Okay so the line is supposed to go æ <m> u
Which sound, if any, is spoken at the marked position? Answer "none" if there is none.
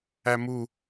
m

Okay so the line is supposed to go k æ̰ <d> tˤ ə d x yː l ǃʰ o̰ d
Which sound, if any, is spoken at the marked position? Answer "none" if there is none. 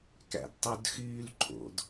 d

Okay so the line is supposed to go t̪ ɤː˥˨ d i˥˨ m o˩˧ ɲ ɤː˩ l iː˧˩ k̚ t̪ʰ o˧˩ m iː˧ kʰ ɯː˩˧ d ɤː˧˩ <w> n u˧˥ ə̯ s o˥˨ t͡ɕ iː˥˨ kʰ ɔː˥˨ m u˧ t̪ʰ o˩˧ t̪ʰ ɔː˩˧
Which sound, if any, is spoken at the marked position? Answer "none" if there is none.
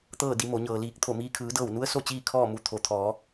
w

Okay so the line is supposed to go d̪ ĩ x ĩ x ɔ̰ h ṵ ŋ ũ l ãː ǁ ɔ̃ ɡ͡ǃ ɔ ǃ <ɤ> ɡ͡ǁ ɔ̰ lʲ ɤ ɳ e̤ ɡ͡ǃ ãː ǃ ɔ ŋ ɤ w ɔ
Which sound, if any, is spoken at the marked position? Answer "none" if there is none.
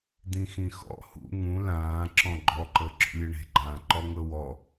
ɤ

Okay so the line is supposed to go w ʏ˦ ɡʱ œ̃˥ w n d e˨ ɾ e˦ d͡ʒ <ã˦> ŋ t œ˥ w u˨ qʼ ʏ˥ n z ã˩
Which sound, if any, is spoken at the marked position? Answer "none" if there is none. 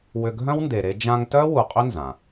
ã˦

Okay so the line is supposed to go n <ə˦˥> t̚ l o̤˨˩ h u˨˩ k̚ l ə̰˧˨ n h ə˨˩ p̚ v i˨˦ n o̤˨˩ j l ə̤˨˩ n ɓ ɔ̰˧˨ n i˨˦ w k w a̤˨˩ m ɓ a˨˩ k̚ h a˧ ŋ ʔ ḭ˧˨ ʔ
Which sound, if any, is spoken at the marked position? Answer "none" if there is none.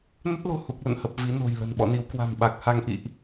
ə˦˥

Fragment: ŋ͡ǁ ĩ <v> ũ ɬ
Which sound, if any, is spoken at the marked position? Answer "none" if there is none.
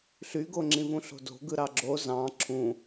v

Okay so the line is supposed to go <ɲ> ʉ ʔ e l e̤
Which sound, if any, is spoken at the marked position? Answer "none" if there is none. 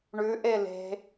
ɳ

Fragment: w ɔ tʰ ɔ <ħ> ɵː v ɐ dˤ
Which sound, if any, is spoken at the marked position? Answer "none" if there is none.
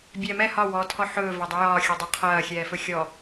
ħ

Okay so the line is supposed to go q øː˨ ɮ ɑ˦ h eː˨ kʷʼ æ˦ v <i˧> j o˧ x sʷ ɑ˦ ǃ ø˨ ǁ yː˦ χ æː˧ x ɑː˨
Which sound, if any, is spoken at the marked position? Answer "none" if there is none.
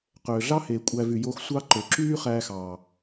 y˧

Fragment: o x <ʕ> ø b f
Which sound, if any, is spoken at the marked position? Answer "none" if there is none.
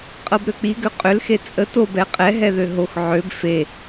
ʕ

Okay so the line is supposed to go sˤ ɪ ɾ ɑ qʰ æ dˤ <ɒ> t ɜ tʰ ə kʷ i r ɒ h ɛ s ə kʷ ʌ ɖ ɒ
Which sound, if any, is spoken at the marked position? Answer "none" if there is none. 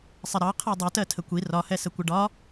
ʌ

